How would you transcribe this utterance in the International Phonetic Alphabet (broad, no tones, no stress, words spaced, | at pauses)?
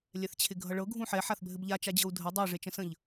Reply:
lʲɛθt͡ɕʰɪɡʱʌɭɤ ɡʱũħɛ ħaθbʱɘbʎa t͡ʃad͡ʑɤu̯dʱə dˤəi̯ ʐet͡ʃə̃sə̃ʎ